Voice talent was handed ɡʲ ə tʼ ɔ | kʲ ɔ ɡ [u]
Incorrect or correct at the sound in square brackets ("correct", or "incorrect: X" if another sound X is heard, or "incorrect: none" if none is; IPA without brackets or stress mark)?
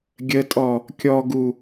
correct